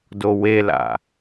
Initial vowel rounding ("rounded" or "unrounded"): rounded